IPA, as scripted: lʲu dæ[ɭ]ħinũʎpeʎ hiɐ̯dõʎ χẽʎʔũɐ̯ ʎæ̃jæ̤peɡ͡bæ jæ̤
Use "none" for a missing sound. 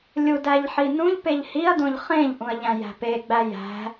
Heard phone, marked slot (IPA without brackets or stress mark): ʎ